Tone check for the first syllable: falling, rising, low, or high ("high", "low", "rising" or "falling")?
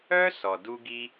high